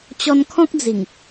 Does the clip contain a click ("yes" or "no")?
no